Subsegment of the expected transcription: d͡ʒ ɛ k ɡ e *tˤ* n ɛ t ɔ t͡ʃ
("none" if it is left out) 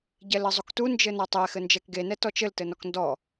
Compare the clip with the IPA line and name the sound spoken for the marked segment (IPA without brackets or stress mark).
none